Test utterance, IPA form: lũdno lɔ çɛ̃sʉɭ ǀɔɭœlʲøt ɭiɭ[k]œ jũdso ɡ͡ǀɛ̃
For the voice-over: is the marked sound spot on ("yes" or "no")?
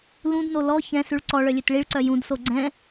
no